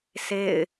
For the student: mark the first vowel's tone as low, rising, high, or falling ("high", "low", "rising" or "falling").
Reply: falling